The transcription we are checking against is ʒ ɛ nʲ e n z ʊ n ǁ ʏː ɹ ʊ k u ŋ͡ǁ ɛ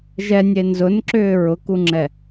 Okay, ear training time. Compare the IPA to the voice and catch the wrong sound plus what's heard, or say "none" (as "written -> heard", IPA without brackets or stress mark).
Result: none